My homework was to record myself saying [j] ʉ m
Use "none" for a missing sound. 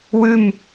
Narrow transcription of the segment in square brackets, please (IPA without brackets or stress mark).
w